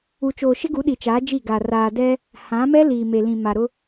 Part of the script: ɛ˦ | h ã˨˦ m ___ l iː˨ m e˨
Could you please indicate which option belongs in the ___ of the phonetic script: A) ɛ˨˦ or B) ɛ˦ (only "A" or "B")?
B